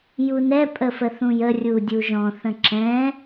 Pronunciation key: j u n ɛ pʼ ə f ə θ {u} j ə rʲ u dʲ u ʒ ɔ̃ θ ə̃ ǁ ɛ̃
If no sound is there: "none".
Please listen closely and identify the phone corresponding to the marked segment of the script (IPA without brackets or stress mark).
ũ